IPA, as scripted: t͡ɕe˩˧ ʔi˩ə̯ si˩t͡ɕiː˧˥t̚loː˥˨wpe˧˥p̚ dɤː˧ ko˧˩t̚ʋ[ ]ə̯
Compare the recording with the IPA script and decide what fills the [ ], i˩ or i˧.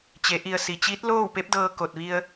i˧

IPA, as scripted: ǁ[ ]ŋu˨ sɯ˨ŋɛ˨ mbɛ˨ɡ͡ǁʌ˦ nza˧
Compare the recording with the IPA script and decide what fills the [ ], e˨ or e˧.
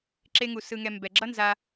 e˧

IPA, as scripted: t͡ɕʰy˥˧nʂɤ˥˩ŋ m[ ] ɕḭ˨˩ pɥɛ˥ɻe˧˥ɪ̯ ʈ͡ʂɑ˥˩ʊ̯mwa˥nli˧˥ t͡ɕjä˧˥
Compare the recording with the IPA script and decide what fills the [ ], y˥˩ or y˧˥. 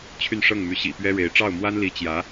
y˧˥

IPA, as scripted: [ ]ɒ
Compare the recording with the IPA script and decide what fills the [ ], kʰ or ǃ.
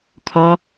kʰ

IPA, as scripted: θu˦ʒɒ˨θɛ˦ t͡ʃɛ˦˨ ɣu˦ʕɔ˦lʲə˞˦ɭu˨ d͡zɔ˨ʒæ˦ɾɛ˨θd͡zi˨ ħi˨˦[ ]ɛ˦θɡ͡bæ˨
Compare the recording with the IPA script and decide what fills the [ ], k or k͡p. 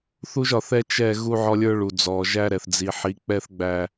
k͡p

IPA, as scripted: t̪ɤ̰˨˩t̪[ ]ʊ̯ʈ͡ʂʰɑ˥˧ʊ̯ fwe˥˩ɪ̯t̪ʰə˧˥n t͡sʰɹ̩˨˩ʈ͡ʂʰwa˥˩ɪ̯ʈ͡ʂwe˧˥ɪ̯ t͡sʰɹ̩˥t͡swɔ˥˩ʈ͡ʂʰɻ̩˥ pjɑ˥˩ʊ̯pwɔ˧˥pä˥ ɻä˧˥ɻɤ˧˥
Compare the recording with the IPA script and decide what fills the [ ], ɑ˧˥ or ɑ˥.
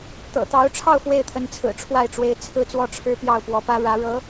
ɑ˧˥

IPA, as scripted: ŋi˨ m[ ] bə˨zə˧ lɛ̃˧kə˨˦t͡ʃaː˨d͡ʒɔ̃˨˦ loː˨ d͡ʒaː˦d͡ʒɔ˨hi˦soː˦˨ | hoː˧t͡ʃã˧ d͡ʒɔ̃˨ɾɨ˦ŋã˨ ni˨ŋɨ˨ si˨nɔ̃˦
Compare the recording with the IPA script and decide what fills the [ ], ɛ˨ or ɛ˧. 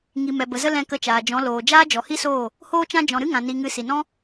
ɛ˨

